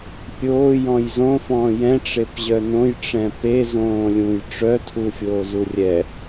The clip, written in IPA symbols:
pʲoːjɔ̃j zõfɔ̃ː jɛ̃ʈ͡ʂepʑœ nõjʈ͡ʂɛ̃ pezõːlʲũj ʈ͡ʂœtʰufʲoːzu rʲɛ

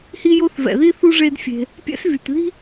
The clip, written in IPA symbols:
hi˦jo˦θvɛ̰˩ði˥ θu˥ʐe˦dfʲe̤˨ | pʲɛ̰˦svy˩tði̤˥

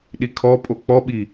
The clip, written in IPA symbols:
ɗikʰɔpʼo k͡pɔɓi

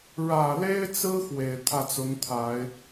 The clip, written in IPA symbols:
ɻä˨˩le˥ɪ̯t͡sɹ̩˥ xwe˨˩ɪ̯t̪ʰä˥˩t͡sʊ˧˥ŋt̪ʰa˨˩˦ɪ̯

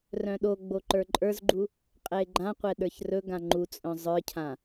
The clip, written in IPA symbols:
rœ̃ɗoɡ͡bo ǃə˞ǃʼə˞zɡ͡ǃu | qʼɛe̯ɡ͡ǃãqʷɛ ɗə˞çrɵɡã ŋ͡ǃut͡sʼœ̃ zˤə˞cʰã

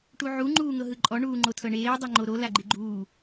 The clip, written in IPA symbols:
ʈuʕu ŋ͡ǃuːŋɤɦɯǃʼɔ ɳuːŋ͡ǃotʰɤɳeː dˤeŋ͡ǃoɾo laɡ͡ǃiɡ͡ǃuː

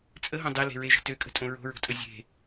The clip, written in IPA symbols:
t͡sʼəɦõ dˤele̤ɹeʒə̤ tøkʼə̤tʼõ ɹo̤ɹo̤tʼə zʲe̤

